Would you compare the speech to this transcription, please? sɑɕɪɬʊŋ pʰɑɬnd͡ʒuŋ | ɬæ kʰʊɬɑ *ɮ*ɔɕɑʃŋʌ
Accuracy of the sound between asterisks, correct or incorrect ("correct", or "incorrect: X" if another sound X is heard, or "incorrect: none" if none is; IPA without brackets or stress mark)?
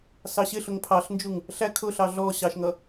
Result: correct